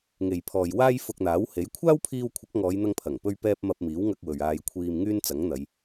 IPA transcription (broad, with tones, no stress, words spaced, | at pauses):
ŋe˨j pʰɔː˨jwaː˥j fʊ˧k̚n̪aː˨˥whe˨˥j kʷʰaː˥wpʰiː˧w kʷʰɐ˨˥k̚ŋɔː˨˧jn̪ɐ˧ŋpʰɐ˨˩ŋ pɵ˥ɥpɛː˥p̚ mɐ˧p̚miː˨˥wŋɐ˧k̚ wɵ˨ɥaː˧j kʷʰiː˧mŋyː˥nt͡sɐ˨˥ŋn̪ɐ˨˧j